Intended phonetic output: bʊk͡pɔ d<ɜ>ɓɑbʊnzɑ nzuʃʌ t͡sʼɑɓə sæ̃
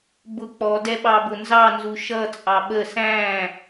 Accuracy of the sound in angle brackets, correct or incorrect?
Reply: incorrect